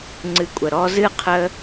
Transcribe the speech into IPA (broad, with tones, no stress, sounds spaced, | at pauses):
ŋ͡ǀ ɨ˧ kʷʼ ə˨ ɾ ɔ˧ z ɨ˦˨ qʰ ə˧